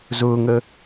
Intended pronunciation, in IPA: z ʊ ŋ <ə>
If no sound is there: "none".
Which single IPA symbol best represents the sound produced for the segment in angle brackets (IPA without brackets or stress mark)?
ə